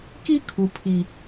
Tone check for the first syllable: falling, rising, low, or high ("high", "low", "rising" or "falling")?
high